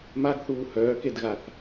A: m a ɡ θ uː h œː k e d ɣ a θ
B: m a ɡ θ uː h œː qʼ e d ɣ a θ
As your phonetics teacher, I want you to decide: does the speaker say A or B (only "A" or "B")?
A